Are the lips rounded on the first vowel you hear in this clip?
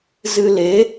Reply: no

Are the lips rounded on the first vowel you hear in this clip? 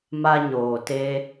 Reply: no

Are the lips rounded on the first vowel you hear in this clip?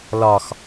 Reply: yes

